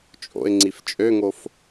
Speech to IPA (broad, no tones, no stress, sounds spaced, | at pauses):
t͡ʃʼ o̰ ɪ̯ ŋ͡ǀ i f t͡ʃʼ ø ŋ o f